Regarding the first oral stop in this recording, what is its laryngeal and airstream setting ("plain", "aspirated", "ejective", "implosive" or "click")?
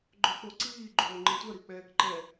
click